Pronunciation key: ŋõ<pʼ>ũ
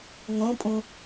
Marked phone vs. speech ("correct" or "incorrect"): correct